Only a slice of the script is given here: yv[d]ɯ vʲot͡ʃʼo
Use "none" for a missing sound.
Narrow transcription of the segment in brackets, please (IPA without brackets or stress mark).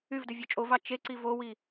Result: d